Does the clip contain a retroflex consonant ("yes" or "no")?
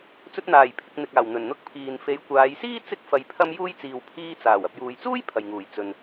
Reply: no